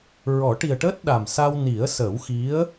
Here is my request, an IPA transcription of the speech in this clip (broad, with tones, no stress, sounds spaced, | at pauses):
ɹ ɔ˨˩˦ ʈ i˨˩ ə̯ ʈ əː˦˥ t̚ ɗ a˨˩ m s a˧ w n i˨˩˦ ə̯ s əː˨˩˦ w x i˧˥ ə̯